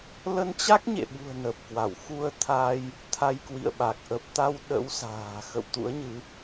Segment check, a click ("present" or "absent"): absent